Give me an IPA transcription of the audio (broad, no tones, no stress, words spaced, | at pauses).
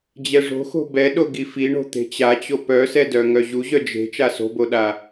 d͡ʑɛʐo̤xo̤ bɛɗo ɡifiɳo̤ t̪e̤t͡ɕat͡ɕo pœsɛdœ ŋœʑuʑœ d͡ʒe̤ t͡ʃaso̤boɗa